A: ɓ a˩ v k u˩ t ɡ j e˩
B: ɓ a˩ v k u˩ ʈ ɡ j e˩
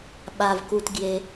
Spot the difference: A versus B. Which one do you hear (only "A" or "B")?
A